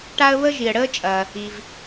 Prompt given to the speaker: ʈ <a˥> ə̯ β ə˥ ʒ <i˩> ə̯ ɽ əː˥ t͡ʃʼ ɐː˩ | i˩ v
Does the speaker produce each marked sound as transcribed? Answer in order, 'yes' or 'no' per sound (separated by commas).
yes, yes